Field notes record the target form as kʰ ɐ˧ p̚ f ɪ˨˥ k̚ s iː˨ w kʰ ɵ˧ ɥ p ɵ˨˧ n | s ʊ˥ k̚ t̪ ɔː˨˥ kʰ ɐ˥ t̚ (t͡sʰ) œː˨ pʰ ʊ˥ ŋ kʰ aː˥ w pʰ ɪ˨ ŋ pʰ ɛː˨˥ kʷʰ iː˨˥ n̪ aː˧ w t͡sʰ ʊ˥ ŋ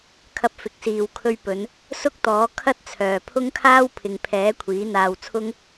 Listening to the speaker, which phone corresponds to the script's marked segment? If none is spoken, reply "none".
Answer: t͡sʰ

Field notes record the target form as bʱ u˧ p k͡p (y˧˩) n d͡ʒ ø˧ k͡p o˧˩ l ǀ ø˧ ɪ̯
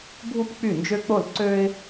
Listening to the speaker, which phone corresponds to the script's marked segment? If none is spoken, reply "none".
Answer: y˧˩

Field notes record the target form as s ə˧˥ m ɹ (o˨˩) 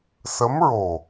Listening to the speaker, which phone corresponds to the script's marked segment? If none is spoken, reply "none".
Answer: o˨˩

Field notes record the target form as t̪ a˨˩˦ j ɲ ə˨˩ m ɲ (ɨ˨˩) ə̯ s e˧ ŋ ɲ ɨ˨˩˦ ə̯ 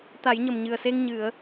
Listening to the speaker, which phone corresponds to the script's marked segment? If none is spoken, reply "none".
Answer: ɨ˨˩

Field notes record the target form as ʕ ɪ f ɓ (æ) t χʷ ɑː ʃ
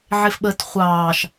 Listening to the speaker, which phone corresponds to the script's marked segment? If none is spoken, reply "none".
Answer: ə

